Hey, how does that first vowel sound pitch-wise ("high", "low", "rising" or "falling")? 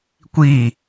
falling